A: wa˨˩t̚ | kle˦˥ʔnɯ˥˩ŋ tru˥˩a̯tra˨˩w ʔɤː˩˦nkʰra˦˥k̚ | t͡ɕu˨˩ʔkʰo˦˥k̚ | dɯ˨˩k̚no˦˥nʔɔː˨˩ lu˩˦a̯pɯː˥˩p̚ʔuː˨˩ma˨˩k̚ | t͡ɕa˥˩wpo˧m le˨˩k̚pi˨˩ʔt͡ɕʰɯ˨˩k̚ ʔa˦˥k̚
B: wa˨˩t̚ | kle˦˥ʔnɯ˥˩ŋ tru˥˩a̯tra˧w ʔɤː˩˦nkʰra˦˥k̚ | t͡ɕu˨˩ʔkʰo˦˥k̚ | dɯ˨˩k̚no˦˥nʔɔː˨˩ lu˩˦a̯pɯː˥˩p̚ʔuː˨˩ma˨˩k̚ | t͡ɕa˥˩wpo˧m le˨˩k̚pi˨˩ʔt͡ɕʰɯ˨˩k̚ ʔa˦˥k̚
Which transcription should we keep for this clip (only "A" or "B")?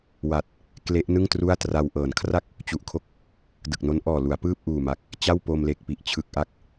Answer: B